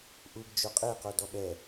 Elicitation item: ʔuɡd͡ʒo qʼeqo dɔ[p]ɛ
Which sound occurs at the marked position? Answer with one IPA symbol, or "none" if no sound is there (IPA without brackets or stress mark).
ɓ